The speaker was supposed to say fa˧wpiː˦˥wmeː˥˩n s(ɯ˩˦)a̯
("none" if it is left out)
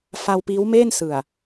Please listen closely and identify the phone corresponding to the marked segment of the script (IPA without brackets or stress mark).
ɯ˨˩